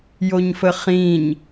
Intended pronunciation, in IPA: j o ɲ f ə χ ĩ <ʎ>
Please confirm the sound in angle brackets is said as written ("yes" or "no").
no